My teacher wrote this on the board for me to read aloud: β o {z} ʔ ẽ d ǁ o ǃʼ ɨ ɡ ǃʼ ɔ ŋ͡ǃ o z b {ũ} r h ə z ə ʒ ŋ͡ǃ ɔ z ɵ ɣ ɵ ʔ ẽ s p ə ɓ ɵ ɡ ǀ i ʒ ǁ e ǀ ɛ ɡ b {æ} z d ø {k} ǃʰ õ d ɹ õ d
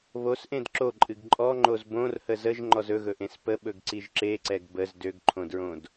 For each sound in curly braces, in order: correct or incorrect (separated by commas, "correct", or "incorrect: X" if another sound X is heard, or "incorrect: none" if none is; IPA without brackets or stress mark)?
incorrect: s, incorrect: õ, incorrect: ə, incorrect: ɡ